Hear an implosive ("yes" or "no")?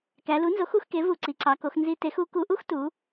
no